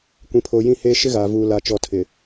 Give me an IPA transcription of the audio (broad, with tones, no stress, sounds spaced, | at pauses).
kʷ ĩ˨ pʰ oː˨ j ĩ˦ h eː˦ ʃ ɪ˦ ɣ aː˨ v uː˨ l a˨ t͡ʃ ɔ˨ tʰ ɪ˨